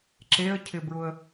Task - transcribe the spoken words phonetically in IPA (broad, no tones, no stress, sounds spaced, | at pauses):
ǁ e ə̯ cʰ ɪ b ɹ ʊ ə̯